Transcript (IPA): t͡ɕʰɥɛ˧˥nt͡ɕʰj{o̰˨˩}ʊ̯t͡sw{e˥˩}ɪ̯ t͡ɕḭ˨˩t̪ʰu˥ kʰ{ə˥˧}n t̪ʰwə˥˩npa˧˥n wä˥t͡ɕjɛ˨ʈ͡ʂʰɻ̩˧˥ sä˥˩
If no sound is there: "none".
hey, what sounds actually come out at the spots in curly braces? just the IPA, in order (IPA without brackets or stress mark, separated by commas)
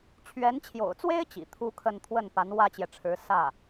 o̰˨˩, e˥, ə˥˧